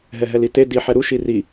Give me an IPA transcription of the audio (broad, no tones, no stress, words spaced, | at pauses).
ɦɛɦɛlite diħɛ ɾuʃi ri